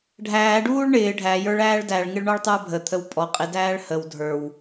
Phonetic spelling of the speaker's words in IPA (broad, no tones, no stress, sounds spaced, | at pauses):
ɖʱ æː ɖ uː ɭ ɳ ɪː ɖʱ æ j ə˞ ɭ æː ɭ d æ ɭ ŋ ɪ ɭ ɳ ɔ ɭ tˤ ə˞ bʱ ə t̪ʰ ə w pʼ ɔ qʼ ɪ d æː ɭ h ə w dʱ ə˞ w